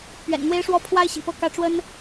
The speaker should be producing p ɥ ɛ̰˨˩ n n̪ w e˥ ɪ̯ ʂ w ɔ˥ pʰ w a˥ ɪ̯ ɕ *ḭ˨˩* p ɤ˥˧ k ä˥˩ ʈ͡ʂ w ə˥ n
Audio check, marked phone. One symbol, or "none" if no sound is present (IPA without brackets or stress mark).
ḭ˨˩